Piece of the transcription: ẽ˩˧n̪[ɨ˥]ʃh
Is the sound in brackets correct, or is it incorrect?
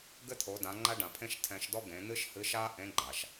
correct